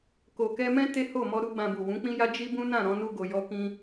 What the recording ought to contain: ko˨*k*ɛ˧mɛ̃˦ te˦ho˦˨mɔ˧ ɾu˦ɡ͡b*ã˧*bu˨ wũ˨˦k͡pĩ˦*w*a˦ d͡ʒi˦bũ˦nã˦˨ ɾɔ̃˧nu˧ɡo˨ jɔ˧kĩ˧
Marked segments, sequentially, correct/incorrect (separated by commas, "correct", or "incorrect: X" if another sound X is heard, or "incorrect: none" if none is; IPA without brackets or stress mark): correct, correct, incorrect: j